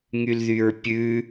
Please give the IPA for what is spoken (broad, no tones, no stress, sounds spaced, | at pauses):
ŋ y l ð y ɹ pʲ ʉ